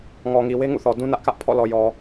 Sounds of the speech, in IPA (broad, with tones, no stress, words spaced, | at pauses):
ŋɔ˨ŋi˨we˦ ŋṵ˦˨θɔ˨dũ˦ nä˦ʔkä˦ʔ pʰɔ̰˦˨lɔ˨jɔ˨